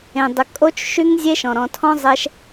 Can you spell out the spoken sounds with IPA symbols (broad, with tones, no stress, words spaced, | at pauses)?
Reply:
ẽ˩dˤʏ˩kʼo˦˥t͡ʃ ʃy˦˥ŋzʲe˦˥ʃɔ̃˩ ɾɔ̃˩tʰɔ̃˦˥ zˤɛ˦˥ʃ